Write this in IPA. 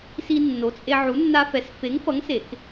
s i˦ nː o˨˥ t͡sʼ e˦ ʕ u˨˥ nː a˦ f ɛ˨˥ s f e˨˥ ŋ f ʌ˨˥ ŋ s e˨˩˦ k

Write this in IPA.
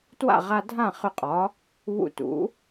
t w a̰˥˩ ʁ a˧ dʱ ã˥˩ χ ʏ˧ qʼ ɒ˩˥ | β ṵ˧ t ṵ˩˥

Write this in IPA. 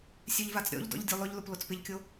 sʲ ø ʎ v a t͡s ɾʲ ɔ̰ ʎ d ɔ̰ ʎ dʲ u lˠ ʊ ʎ l ʊ p l o t͡s p ɪ ʎ kʲ o

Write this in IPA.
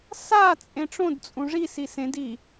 s a t͡sʼ ẽ ʈ͡ʂ õ d t͡sʼ ũ ʐ i s i s ẽ d i

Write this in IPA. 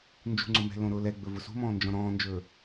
n d͡ʒ ṳ ŋ͡ǀ ʊ m ɛ̤ l õ ɾ ʊː l ɛ ɡ͡b ɵ v ʊ s ṳ m ɔ̃ː n d͡ʒ ɔ̃ ɾ ɔ̃ː n d͡ʒ ɵː

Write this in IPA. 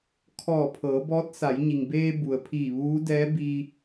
kʰ ɔː˧˩ pʰ ɤː˩˧ b ɔː˧˥ t̚ s a˩˧ j ɲ i˩ ŋ b eː˧ b u˩ ə̯ pʰ iː˧˩ ʋ uː˧˥ d ɛː˧˥ b iː˧

